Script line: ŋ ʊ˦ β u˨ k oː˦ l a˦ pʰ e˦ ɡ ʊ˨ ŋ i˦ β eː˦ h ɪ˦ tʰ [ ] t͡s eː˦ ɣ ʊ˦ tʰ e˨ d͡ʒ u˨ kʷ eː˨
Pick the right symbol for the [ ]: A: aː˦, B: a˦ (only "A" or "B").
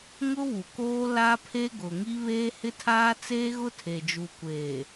A